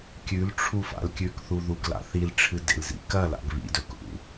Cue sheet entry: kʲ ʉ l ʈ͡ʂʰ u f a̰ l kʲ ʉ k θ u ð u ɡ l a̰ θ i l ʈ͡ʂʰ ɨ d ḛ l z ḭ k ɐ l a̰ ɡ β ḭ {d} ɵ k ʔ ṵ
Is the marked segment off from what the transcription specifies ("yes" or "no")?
no